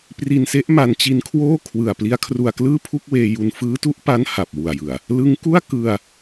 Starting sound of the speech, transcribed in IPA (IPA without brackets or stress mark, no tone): p